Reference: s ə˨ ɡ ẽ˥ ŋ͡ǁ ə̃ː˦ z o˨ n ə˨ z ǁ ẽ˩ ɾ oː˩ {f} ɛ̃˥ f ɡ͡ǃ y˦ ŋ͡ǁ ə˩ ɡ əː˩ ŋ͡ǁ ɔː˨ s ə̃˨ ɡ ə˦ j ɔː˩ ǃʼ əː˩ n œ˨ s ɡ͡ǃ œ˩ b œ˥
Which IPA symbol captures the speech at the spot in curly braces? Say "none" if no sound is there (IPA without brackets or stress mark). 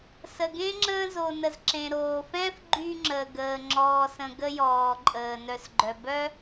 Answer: f